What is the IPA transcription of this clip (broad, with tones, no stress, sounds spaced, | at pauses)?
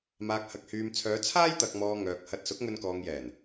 m aː˨ k̚ h ɐ˨ k̚ h yː˨ m t͡sʰ œː˨˧ t͡sʰ aː˥ j t̪ ɐ˨ k̚ m ɔː˨ ŋ œː˨ k̚ h ɐ˧ t̚ s ʊ˨˥ k̚ ŋ ɵ˧ n k ɔː˨ ŋ j ɛː˨˩ n